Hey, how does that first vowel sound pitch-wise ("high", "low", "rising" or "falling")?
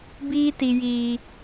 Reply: high